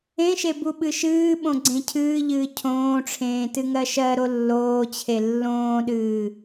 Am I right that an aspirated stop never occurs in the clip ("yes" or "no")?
no